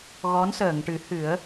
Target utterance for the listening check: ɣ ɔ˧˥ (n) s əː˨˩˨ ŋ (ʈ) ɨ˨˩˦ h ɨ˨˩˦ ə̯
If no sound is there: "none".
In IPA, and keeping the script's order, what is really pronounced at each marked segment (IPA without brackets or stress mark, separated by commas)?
n, ʈ